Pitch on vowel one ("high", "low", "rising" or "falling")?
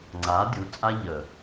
rising